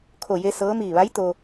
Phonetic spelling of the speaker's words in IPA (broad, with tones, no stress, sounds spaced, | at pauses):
kʰ o˧˩ j e˧ s ɤː˧˥ m iː˧˩ ʋ a˧˥ j t̪ o˧